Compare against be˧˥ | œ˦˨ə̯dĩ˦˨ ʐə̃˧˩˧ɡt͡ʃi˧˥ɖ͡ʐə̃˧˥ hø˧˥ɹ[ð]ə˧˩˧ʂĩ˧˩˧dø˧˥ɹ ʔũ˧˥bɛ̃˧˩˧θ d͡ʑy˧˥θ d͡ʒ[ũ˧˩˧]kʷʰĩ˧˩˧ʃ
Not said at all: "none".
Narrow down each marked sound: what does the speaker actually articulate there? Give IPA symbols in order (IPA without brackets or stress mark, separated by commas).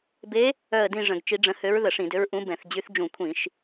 ð, ũ˧˩˧